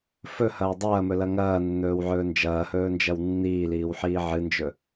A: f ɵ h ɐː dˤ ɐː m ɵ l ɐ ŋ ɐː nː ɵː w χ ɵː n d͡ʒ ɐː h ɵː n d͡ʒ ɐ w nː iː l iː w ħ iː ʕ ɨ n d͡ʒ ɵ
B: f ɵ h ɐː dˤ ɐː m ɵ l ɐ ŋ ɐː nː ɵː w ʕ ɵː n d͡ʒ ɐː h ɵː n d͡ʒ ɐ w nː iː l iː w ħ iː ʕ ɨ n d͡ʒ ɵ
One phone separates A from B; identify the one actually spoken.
B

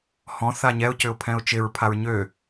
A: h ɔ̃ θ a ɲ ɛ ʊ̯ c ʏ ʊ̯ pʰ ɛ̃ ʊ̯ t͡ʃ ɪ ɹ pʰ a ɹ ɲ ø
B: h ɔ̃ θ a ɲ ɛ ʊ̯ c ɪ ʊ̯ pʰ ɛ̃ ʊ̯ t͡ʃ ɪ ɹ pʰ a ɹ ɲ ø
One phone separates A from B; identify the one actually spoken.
A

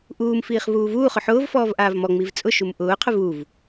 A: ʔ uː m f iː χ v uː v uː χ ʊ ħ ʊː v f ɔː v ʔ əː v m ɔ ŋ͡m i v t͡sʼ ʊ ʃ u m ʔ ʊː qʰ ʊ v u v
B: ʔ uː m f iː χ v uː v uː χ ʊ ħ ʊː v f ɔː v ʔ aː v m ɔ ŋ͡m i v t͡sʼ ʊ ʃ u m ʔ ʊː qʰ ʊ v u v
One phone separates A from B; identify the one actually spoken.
B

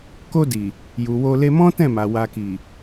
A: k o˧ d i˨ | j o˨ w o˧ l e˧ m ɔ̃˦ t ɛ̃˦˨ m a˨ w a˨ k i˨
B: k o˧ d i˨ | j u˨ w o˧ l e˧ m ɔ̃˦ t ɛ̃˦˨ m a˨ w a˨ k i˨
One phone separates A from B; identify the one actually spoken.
B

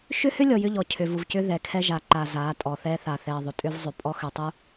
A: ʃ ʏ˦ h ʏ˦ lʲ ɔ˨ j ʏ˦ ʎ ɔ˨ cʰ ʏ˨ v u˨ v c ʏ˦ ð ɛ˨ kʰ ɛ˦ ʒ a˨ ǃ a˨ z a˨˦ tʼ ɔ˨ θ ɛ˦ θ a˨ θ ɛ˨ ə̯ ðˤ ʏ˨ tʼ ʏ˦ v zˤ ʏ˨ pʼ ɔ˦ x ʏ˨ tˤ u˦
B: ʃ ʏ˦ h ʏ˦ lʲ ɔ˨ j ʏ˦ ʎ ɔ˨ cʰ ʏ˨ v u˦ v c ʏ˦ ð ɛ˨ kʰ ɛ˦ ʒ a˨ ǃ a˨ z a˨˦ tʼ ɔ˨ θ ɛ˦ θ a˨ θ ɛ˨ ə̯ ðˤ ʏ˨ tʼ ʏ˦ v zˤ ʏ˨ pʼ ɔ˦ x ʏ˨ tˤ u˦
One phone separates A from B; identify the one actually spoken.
A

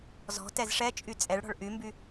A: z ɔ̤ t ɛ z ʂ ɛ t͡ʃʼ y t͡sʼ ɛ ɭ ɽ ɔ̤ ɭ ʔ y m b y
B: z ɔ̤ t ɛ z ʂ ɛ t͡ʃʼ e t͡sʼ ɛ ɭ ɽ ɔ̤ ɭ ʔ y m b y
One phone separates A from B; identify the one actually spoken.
A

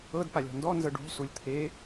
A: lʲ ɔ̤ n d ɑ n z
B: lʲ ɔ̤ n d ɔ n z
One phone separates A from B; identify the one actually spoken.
B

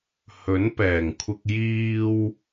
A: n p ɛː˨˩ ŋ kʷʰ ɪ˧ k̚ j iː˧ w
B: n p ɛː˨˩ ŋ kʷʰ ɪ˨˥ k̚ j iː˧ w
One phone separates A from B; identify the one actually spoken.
A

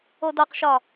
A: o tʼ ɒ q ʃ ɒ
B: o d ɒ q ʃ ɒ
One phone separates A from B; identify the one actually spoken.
B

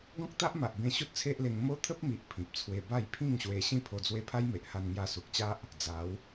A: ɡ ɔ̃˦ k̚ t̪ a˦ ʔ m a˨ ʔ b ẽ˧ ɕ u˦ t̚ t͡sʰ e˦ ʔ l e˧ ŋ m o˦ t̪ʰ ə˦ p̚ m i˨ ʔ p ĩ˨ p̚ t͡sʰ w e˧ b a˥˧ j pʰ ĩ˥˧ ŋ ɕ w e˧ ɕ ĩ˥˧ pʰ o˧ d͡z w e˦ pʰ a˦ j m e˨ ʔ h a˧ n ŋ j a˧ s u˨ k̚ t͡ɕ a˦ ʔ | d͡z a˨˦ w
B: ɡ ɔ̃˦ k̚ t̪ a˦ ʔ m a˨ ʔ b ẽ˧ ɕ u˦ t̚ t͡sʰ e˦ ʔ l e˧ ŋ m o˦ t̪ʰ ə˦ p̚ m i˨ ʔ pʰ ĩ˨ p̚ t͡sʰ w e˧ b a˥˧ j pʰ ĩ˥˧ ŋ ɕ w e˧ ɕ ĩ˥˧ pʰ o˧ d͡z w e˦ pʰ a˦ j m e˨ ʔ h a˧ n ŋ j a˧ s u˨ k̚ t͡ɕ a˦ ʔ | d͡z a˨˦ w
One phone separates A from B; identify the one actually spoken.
B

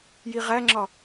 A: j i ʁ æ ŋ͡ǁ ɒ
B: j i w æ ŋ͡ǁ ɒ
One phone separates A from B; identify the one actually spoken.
A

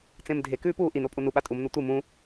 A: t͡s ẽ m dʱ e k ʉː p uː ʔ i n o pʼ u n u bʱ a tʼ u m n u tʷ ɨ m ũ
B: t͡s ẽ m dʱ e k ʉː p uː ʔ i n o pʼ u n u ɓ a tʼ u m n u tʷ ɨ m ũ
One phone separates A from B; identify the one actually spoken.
B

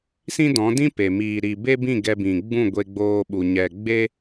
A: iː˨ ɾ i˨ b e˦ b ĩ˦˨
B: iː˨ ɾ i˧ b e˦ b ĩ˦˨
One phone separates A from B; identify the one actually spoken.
A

